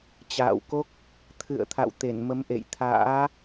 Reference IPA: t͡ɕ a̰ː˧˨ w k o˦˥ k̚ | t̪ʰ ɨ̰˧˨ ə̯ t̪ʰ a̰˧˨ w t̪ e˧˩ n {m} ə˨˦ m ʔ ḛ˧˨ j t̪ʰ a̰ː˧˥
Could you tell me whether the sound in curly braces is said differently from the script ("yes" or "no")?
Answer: no